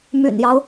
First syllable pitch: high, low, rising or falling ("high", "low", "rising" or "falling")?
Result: low